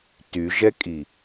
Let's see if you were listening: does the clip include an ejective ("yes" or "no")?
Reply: yes